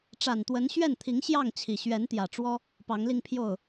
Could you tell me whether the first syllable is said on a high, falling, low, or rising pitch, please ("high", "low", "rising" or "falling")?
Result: low